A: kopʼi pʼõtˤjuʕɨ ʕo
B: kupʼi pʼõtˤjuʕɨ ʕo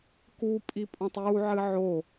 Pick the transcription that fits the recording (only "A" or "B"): B